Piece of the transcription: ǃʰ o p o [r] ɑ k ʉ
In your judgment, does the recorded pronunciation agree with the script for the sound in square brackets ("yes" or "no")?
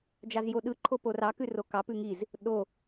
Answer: yes